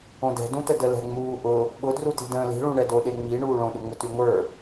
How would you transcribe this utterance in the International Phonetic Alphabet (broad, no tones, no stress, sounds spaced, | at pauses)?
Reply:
õ d ɛ̤ d ũ t ə d ə l ɛ̤ ŋ͡m uː ʔ ʊ | ɓ ʊ d r u t i̤ d ə̃ː l i̤ ɭ ũ ɳ ɛ d o ɗ e ŋ͡m i ɳ uː ɭ õ ɗ ʊ ŋ͡m ʊ t y ŋʷ ə˞